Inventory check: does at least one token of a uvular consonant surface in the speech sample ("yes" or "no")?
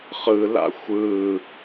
yes